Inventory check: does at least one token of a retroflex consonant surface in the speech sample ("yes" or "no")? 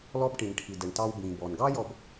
yes